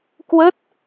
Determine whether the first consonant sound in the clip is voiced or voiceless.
voiceless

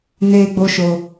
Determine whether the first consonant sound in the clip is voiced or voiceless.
voiced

